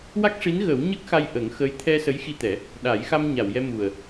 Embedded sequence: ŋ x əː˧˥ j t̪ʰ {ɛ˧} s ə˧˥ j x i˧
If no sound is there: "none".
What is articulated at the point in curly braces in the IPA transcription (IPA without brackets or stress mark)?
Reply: ɛ˧